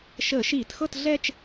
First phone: ʃ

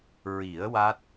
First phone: ɹ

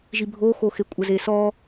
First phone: ʒ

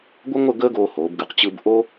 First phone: ɡʷ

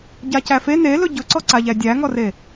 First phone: ɟ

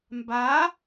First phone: m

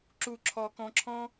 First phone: ǁ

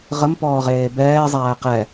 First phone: ʁ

